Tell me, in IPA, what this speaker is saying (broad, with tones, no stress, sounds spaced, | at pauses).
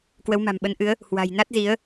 k w ə˨˦ w m a̤˨˩ m ɓ ə˨˦ n ʔ ɨ˨˦ ə̯ | h w a̤˨˩ j n a˦˥ t̚ z i˨˦ ə̯